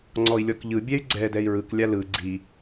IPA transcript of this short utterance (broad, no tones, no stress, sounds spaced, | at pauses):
ŋ͡ǀ ɔ i̯ lʲ ɔ k ʎ ɯ bʲ ɛ y̯ ɡ͡ǀ ɛ d ɛ i̯ ɹ ɯ k lʲ a l ɯ ɡ͡ǀ i